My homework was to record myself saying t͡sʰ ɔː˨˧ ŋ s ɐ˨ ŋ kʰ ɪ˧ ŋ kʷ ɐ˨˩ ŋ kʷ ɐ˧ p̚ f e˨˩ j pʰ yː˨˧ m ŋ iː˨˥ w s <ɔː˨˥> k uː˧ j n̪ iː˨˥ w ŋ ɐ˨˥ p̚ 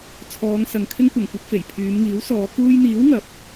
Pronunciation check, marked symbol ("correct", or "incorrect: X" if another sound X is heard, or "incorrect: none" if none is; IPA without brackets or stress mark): incorrect: ɔː˨˧